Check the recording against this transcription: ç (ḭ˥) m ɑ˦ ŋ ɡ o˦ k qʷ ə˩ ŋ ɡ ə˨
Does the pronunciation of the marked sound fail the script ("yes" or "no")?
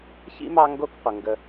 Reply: no